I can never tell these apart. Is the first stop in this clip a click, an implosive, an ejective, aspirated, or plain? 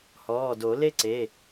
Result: plain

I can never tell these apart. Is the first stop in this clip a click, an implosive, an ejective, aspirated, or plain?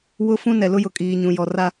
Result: ejective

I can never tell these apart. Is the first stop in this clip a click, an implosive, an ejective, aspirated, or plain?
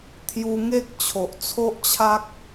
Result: aspirated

